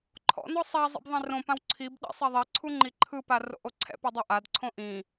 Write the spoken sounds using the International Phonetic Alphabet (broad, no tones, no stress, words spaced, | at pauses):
ǃʰɔ̰nɔ sˤa zˤɛ̰bðˤẽrõpãw ǀʰibɗɛ̰ sˤɛðˤiǀʰu ŋ͡ǃiǃʰɯpa ro̰ʔoǀʰɛ̰pɤ dˤoʔadǀʰõ ʔĩ